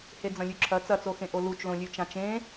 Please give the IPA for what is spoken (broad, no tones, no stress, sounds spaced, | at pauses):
h e d͡z ɐ̃ lʲ ʉ ǁʰ ɐ t͡s ɐ t͡s o x ẽ ʔ o l u t͡ʃ l õ lʲ ʉ t͡ʃ ã t͡ʃ ẽ